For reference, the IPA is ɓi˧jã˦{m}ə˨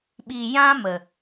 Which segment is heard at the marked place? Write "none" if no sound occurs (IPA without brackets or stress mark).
m